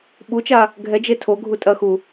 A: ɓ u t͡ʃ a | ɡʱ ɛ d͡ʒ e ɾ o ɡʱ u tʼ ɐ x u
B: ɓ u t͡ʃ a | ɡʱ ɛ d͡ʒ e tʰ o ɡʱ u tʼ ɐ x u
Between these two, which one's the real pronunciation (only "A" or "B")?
B